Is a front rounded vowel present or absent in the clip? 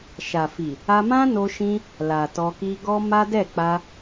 absent